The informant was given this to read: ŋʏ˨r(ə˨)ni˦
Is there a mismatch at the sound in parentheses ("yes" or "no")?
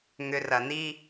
yes